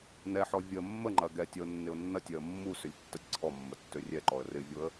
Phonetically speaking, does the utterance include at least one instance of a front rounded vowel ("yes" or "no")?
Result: yes